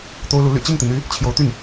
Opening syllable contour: high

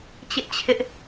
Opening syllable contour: high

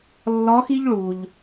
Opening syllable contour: rising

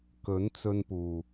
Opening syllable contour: rising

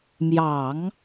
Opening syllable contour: low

